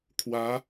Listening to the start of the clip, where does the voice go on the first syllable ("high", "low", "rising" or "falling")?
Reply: rising